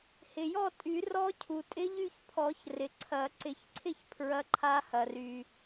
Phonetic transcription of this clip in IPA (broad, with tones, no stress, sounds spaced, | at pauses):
h ɪ˩ j ɔ˥˧ tʼ y˨˩˦ r ɔ˦˥ cʰ u˩ tʼ ɪ˦˥ ʎ y˥˧ ç pʰ ɔ˨˩˦ ç r ɪ˩ ǀʰ ɐ˨˩˦ ǀ ɪ˨˩˦ ç ǀʰ ɪ˥˧ ç pʰ ɹ ɐ˦˥ ǃʰ a˦˥ h ɐ˩ r y˩